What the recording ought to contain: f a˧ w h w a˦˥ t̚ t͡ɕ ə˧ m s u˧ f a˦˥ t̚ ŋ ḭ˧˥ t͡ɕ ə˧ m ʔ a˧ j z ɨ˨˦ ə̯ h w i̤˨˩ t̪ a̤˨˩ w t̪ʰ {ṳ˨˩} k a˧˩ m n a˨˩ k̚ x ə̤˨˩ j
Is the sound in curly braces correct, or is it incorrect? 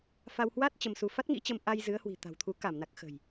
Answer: incorrect